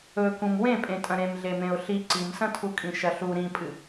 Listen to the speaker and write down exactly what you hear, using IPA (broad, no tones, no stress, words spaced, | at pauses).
ɵ kũmwẽpʼẽ tʼɐ̃ɾẽm ɮemẽʊ̯ɬi ǀimsɐ̃tʰukʼĩ ʃɐɬu ɾĩpʼɨ